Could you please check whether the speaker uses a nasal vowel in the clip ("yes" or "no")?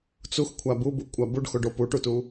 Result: no